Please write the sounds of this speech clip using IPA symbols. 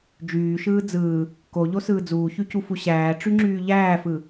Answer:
d͡ʒyːʃɯː d͡zɯː | koʎosɯː d͡zuːçycufu ɕæːʈ͡ʂyŋ͡ǁyː ʎæːfɯ

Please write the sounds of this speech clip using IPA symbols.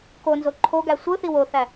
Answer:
konzo ǃʰoɡæ sʷɯθi woθæ

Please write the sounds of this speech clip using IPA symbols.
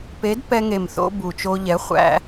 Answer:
pe˨˥d pɛ˧ŋe˨˩mθo̰˧ bu˨˩t͡ʃo˧ʎɛ˨˥ χʷæ̰˧

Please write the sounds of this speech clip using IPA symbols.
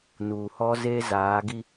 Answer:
nuː˨hɔ˦zeː˦ zaː˨˦ ɡi˦

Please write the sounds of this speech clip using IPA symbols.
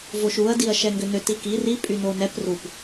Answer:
voʃuɐ̯ diɐ̯ʃɛŋɡʏnʏ tiki ri pʼynonɛp rup

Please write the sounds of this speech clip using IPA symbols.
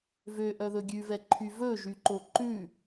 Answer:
vøʔœ ðɵɡʲʉvɛǃʰy vɵʒyǃo ǃʉ

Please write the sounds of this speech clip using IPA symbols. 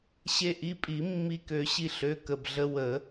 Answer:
ɕe˧ʔi˩˧˩ pʼi˨˩˦ mːi˧kø˨˩˦ɕi˧ ɬø˩˧˩kə˩˧˩bɮə˧ wə˨˩˦

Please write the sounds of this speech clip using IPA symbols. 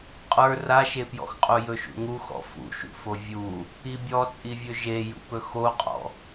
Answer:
qʼə˞ raʃepjɔ̰xqʼu jɵʃṵŋu xɔ̰fṵʃṵfo vʲu | ibʲɔt͡sʼivʲɵ ʒejṵpɵ xoqʼɔ̰

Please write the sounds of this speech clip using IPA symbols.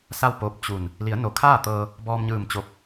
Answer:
sa˥˨wpoː˧˥p̚ t͡ɕu˧˩n | li˩˧ə̯no˩kʰaː˥˨t̪ɤː˧ | bɔː˧mɲɯː˧˩mt͡ɕo˧˩p̚

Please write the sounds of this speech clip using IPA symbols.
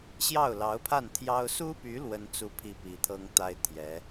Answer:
ɕjɑ˥˩ʊ̯lɑ˧˥ʊ̯pʰa˥˩nt̪ʰjɑ˥ʊ̯ su˥py˧˥ lwə˥nt͡su˥pʰi˥˩ pi˧˥t̪ʰɤ˥ŋt̪a˥ɪ̯t̪ʰjɛ˧˥

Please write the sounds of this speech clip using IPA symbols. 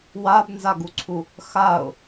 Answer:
wabnzaɡuǀʰu | xaʊ̯

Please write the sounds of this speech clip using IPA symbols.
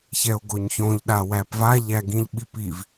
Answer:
çɛo̯ɡoɲçõʎ ɗawæpva ʎæɡĩʎɓipiv

